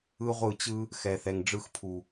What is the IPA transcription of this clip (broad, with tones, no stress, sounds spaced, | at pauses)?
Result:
ɯ˦ ʁʷ ɯ˦˨ t͡ɕ ɯ˦ | x ɛ˨ θ ɛ˨ ŋ ɖ͡ʐ ɯ˧ x pʰ u˨